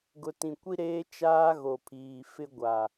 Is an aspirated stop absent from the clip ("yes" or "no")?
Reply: no